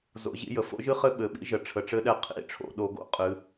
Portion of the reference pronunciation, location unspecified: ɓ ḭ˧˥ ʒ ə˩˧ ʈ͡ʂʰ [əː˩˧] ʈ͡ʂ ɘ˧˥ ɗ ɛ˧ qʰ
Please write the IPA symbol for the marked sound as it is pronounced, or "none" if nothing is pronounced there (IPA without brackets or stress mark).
ə˩˧